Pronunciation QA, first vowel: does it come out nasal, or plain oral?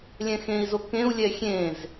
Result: nasal